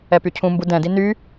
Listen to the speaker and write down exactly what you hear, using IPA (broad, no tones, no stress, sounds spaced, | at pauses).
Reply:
ɛ p y cʰ ũ m b u d ɛ̃ d i n y